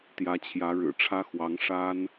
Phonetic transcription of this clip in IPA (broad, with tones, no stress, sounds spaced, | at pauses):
t̪ j ä˧˥ t͡ɕʰ j ä˧˥ ɻ ɻ̩˨˩ ʈ͡ʂʰ ä˥ x w ɑ˧˥ ŋ ʂ a˥ n